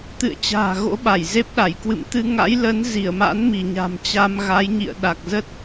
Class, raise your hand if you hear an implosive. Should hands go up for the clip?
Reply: yes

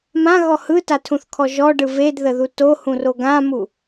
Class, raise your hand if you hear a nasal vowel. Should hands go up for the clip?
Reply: yes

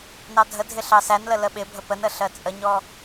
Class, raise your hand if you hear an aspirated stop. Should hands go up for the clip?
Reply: no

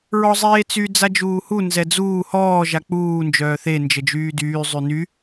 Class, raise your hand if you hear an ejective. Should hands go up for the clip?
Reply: no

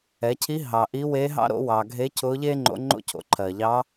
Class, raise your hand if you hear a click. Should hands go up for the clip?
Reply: yes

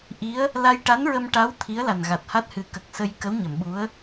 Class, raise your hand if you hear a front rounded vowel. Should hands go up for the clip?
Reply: no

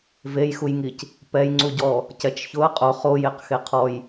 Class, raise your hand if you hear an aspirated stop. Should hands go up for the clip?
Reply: yes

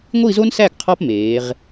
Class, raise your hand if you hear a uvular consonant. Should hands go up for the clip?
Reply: yes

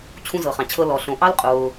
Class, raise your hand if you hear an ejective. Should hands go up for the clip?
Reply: yes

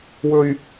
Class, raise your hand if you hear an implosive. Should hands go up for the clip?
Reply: no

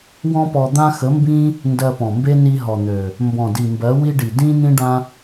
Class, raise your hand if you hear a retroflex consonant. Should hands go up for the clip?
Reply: yes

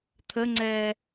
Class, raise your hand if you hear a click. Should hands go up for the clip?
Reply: yes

